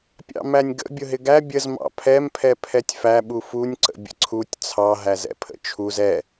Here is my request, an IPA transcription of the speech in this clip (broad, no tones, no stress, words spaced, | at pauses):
pʲɑ̰mænʲɡə̰ bʲʊɦɪɡæ bʲəz mɑ̰pʰɛm pʰɛpʰɛtʲfæ ɓufunʲ ǀə̰bʲə̰ǀʰutʲ t͡sʰɑ ɦæzɛ̰pʰə̰t͡ʃʰuz ɛ